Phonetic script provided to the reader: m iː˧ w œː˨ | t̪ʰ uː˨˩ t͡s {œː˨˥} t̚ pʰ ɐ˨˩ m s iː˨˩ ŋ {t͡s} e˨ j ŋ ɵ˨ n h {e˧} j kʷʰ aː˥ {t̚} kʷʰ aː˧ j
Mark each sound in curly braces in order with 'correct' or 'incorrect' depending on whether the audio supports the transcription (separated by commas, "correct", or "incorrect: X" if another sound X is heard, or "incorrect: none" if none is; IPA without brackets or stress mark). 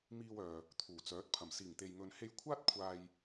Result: correct, incorrect: t̪, correct, correct